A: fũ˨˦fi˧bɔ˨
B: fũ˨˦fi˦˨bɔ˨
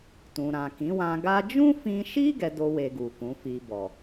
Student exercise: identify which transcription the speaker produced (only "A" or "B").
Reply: A